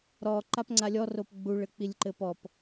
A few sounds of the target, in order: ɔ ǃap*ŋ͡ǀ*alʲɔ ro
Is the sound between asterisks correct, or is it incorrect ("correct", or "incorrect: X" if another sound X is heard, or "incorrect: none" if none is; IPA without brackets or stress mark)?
correct